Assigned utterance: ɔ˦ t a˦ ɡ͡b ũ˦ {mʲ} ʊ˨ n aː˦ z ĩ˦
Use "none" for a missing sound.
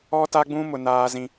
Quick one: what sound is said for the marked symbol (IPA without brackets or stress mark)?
m